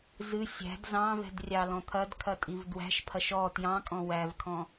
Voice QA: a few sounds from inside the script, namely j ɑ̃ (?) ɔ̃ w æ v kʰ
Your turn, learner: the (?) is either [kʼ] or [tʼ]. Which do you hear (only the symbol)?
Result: kʼ